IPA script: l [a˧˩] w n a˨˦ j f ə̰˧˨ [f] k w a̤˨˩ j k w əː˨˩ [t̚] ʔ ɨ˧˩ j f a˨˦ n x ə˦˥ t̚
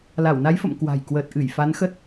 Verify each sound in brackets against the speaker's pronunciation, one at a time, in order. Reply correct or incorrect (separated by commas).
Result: correct, incorrect, correct